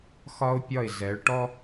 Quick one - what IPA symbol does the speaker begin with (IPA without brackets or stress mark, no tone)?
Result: x